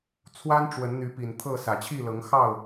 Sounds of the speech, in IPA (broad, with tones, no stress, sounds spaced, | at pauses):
t͡sʰ w a˦ n ʈ͡ʂ w ə˨˦ n n̪ y˨˦ p i˨˩ n t̪ʰ ɤ˥˨ s ä˨˩ t͡ɕʰ i˥˨ l ɤ˨˦ ŋ x ɑ˥˨ ʊ̯